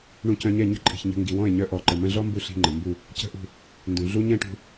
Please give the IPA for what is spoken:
ɳ ũ˧ c œ̃˧ ɲ ɛ˦˨ ɲ ə̤˦ ǃʼ i̤˨ ç ɲ ə̤˧ ŋ ɡ i˨ w ɔ̃˦˨ e̯ ɲ œ˧ ʔ ɔ˨ ǃ ə˨ m ə̃˧ ɮ ɔ˦ m b u˧ ɬ i̤˧ ŋ͡ǃ ə˨ m b u˦˨ | c ə̤˦˨ ʔ ṳ˦˨ | n d ũ˨ ɮ u˦ ɲ ɛ̃˦ ʈ ṳ˧

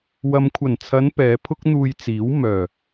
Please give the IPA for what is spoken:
w ɐ˨ m kʷʰ ɐ˨˩ n t͡sʰ ɐ˨˧ n p ɛː˨˧ pʰ ʊ˥ k̚ n̪ uː˧ j t͡s iː˨˥ w m œː˨˩

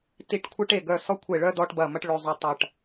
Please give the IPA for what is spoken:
t i˨˩ ʈ kʷʰ e˧ ʈ e˨˩ ɡ œ˨˩ s ɔ˧ kʷʰ e˨˩ ɭ œ˧ d ɔ˧ ʈ b ɐ˨˩ m ɐ˧ ʈ ɭ ø˨˩ zˤ ø˨˩ tˤ ɐ˨˩ ʈ

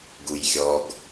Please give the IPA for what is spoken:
ɡ u j xʲ ɔ ɡ

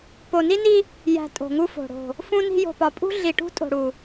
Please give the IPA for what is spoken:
p o˨ n i˦ n i˦ | j æ̤˨ tʼ o̤˨ ŋ u˦ f o̤˨ ɽ o̤˨ | f ũ˦ n i̤˦ j o̤˨ p ɒ˨ pʼ ṳ˦ ɮ i˨ ʈ ṳ˦ tʼ o̤˨ ɽ u˨

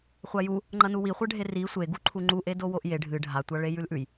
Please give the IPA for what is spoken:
χʷ a j u | ŋ͡ǃ ɐ n u w i χʷ ɐ ɖʱ e r i sʷ e ɡ u ǃʰ u ŋ͡ǃ u ʔ e d o w o ʔ j e ɖʱ ɨ ɖʱ a tʷ a ɭ e j ʉ l ʔ ʉ j

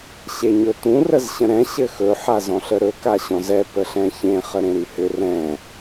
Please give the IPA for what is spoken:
ɕ e ɲ ɵ t ũ r ə z ɕ ə̃ ɾ ɛ̃ ɕ ɘ x ɵ ħ a z ɔ̃ ɬ ə ɾ ɵ k a ɕ ɔ̃ z ɛ p ə ɬ ɛ̃ ç ẽ χ ə ɾ ẽ ɾ y h ʏ r ɛ̃

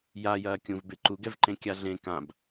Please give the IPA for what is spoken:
j a j ɐː kʲ ũ v b e ǃ u ɡ ɛ v ǃ ẽ kʲ a ɮ ẽ k ã b

